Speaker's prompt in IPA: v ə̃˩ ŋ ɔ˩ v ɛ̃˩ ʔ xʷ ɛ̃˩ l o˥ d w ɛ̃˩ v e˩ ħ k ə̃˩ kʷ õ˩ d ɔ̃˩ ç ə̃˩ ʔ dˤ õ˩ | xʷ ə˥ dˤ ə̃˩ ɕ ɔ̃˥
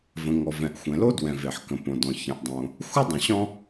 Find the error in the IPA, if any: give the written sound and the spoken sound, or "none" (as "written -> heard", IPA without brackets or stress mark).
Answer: kʷ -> p